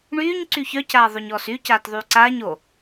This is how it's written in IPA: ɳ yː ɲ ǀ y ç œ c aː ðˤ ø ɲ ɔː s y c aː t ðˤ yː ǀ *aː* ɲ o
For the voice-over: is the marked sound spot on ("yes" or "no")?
yes